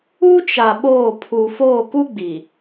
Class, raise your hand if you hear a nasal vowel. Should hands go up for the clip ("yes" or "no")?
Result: no